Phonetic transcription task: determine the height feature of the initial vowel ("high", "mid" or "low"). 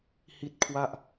high